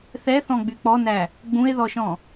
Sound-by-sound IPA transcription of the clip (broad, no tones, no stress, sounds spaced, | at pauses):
θ ɛ θ ɔ̃ ɡ͡b y k͡p ɔ n æ | ɡ͡b ũ e̯ ð ɔ ʃ ɔ̃